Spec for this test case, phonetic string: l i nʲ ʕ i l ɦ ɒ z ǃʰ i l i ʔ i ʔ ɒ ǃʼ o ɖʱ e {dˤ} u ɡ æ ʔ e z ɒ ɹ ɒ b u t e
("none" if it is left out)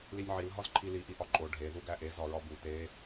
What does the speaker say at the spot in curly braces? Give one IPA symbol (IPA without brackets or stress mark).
ð